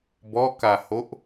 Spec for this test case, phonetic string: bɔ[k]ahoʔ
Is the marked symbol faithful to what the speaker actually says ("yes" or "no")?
yes